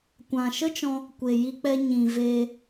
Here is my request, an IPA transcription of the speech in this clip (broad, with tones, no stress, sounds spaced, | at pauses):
kʷ ã˨ ʃ ə˦ t͡ʃ ɔ̃˧ | kʷ e˨ j i˧ k͡p ɛ˧ ɲ ĩ˨ v eː˧